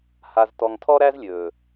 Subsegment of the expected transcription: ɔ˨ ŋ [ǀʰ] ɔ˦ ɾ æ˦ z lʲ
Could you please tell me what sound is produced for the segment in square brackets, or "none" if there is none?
tʰ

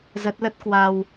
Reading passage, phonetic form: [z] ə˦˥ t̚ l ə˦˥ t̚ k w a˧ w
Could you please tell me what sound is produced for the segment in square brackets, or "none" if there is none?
z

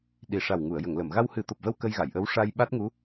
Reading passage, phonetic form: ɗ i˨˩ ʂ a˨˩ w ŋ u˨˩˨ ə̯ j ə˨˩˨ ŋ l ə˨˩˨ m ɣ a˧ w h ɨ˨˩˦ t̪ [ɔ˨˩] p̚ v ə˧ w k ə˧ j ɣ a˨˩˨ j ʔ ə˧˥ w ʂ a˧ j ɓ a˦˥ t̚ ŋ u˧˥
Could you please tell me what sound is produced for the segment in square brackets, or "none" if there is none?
o˨˩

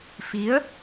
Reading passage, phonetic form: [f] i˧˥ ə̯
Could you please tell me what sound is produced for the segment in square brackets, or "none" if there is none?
f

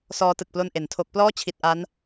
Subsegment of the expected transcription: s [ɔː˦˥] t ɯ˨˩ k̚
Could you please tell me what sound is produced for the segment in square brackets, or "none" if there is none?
ɔː˦˥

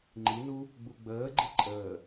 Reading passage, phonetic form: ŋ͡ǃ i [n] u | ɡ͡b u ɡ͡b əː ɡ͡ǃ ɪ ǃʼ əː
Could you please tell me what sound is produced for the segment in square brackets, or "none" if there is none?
n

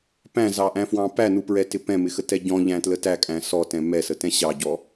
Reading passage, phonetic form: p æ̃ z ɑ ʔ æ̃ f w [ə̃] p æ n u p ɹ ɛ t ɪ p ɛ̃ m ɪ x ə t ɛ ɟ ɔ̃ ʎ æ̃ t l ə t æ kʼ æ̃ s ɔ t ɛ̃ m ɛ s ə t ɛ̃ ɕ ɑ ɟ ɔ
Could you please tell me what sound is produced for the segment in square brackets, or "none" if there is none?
ɑ̃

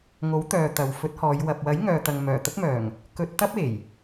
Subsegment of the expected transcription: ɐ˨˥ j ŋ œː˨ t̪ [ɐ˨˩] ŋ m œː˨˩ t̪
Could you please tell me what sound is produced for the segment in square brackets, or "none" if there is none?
ɐ˨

